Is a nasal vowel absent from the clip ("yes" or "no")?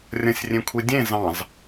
no